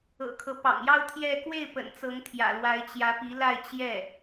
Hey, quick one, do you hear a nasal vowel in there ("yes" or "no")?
no